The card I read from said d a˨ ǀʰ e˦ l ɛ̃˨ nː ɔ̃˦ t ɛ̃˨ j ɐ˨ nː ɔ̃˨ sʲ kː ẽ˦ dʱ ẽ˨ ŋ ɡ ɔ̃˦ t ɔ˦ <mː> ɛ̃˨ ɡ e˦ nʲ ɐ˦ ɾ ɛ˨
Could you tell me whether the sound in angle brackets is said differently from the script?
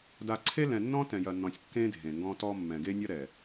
no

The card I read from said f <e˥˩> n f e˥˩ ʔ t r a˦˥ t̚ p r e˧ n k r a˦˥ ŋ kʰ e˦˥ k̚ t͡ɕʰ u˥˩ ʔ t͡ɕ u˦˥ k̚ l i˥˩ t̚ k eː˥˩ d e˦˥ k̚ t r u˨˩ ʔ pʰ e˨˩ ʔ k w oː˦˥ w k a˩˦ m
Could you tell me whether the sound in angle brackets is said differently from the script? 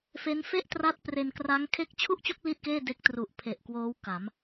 yes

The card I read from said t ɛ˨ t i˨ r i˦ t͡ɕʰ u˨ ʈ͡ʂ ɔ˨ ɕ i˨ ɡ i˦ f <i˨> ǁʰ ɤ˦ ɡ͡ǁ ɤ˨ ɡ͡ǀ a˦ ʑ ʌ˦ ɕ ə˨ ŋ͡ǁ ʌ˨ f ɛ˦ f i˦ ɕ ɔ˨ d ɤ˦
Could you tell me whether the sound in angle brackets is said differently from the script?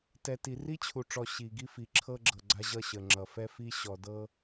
no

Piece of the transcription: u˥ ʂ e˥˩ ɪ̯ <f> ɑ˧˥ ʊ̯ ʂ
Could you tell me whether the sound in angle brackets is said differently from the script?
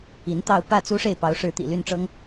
yes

